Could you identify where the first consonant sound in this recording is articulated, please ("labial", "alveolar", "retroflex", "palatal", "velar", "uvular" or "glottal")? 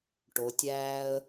retroflex